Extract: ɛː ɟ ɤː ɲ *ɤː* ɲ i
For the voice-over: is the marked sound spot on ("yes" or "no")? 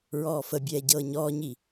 no